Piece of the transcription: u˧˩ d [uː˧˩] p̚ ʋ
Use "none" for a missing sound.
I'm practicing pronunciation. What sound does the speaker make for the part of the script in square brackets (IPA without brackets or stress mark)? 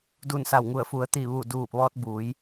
uː˧˩